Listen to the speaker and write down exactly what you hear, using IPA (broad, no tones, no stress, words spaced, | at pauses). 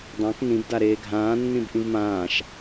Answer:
dˤãk nĩbda ɾeːɡʱãːnːĩb ʔĩvmãːʃ